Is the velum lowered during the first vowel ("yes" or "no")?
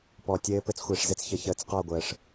no